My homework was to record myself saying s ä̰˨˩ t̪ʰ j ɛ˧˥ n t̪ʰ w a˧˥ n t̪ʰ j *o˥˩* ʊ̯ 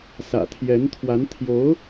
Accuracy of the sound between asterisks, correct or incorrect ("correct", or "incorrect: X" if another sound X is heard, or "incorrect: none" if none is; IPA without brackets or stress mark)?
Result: incorrect: o˧˥